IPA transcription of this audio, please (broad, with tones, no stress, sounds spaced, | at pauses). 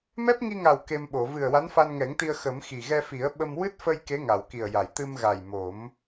m ɛ˦˥ p̚ ŋ i˧ ŋ a˨˩ w k e˧ m ɓ o˨˩˨ v ɨ˨˩ ə̯ w a˧˥ n f a˧ n ŋ ɛ˨˩˦ ŋ t̪ i˧ ə̯ x ə˨˩˦ m x i˨˩ ɣ ɛ˧ f i˨˩˦ ə̯ ɓ ə˧ m w ɨ˦˥ t̚ f ə˧ j k e˧˥ ŋ a˨˩˨ w k i˨˩ ə̯ j a˨˩˨ j t̪ ɨ˧ m ɣ a˨˩ j m o˨˩˦ m